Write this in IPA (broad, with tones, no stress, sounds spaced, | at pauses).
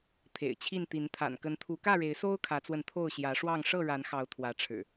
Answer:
t̪ʰ ḛ˨˩ ɪ̯ t͡ɕʰ i˥˨ n t̪ i˨˦ n t̪ʰ a̰˨˩ n k ə˨˦ n t̪ʰ u˨˦ k ä˥˨ ɻ e˨˦ ɪ̯ s o˦ ʊ̯ kʰ ä˨˦ t͡s w ə˧ n t̪ʰ o˥˨ ʊ̯ ɕ j ä˨˦ ʂ w ɑ˥˨ ŋ ʂ ɤ˥˨ ɻ a˨˦ n x ɑ˨˦ ʊ̯ t̪ʰ w ä˨˦ ʈ͡ʂʰ ɻ̩˨˩